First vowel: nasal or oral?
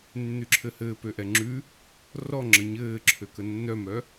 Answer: oral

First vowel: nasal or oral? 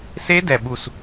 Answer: oral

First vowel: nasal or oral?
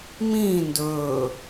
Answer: nasal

